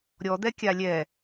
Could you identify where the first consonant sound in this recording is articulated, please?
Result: alveolar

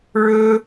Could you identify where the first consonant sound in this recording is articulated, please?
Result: retroflex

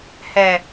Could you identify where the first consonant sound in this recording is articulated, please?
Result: glottal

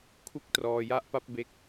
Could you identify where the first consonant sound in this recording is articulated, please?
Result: velar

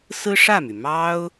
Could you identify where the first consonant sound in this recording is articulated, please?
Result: alveolar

